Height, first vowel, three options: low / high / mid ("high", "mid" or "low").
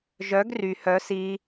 mid